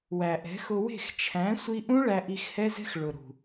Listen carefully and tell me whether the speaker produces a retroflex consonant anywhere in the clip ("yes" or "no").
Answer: yes